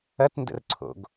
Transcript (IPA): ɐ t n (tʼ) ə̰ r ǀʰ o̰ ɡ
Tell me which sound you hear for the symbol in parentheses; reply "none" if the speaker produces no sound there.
d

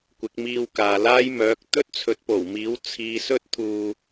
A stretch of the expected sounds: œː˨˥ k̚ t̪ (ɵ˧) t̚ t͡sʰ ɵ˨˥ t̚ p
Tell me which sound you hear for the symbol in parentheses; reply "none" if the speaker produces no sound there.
ɵ˥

